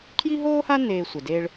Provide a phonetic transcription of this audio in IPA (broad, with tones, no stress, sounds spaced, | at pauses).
kʰ j i˥ ɦ oː˥ h a˥ n eː˧ sʷ ɛ˩ d e˧ ɭ